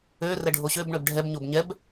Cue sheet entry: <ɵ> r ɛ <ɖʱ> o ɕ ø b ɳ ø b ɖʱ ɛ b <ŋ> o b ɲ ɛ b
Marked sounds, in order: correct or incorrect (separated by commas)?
incorrect, correct, incorrect